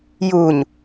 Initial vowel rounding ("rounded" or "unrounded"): rounded